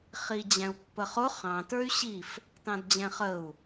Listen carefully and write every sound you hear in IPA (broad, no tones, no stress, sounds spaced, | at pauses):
χ i d͡ʑ æ̃ u̯ pː ə χ ʊ χ ɑ̃ t ə˞ y̯ ɕ i f | t ɑ̃ d d͡ʑ ɛ̃ χ ə u̯